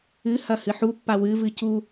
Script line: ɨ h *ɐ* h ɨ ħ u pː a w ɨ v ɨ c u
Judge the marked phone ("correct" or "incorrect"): correct